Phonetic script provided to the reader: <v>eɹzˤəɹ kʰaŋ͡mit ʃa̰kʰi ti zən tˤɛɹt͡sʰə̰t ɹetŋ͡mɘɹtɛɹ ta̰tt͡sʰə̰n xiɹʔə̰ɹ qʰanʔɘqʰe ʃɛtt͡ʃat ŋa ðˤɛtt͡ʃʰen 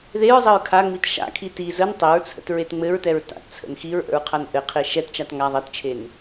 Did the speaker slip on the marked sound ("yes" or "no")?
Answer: yes